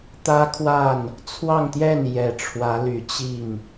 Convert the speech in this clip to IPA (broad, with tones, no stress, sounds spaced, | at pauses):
t̪ ä˥ kʰ w a˥˩ n | t͡sʰ w ɑ˥˧ ŋ t̪ j ɛ˥˩ n j ɛ˨˩ ʈ͡ʂʰ w ä˧˥ l y˨˩ t͡ɕ i˥˩ ŋ